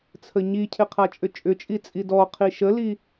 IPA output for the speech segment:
t͡sʰ ə ɲ i cʰ ɪ qʰ a t͡ʃʼ ʏ t͡ʃʼ ʏ t͡ʃʼ i t͡sʼ i d ɔ qʰ i ʃ ə l i

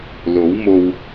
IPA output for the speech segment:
l o˨˥ w m o˧ w

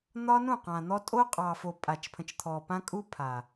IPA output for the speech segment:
n̪ ɒ˦ n ũ˦˨ q ã˨ n̪ ɔ˦ tʼ o˦ qʼ ɑ˨ f o˨ pʼ a˨ t͡ʃ pʰ ə̃˨ t͡ʃ t̪ʰ ɔ˨ p ã˦ kʼ u˦ pʰ a˨

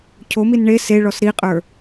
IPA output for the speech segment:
cʰ o m i n ɳ e s e ɭ ɔ s ɾ i qʼ ə˞

